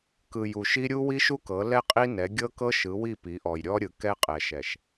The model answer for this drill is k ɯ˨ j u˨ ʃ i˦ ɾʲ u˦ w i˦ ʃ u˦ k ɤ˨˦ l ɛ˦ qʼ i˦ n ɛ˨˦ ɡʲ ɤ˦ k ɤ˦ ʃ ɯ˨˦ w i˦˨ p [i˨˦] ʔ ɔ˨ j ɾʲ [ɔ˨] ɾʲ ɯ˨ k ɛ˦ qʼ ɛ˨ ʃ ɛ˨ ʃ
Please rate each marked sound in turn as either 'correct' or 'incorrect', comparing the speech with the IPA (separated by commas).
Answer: correct, incorrect